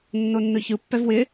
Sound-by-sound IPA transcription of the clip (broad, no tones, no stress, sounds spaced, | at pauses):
nː o nː ɯ ç ɯ pː ɛ v w ɪ